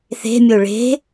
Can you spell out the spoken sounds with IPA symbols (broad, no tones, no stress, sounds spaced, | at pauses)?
θ e̤ mʲ o ɭ e̤